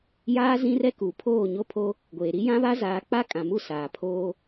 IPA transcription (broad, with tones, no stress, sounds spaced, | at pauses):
j aː˦ z ĩ˦ r ɛ˦ k u˨ pʰ oː˦˨ ɲ o˦ pʰ o˦ | ɡʷ eː˨ ɾ i˦ j ã˦ β a˦ z aː˨˦ k͡p a˦ kʼ ã˨ m u˦˨ s aː˨ pʰ oː˦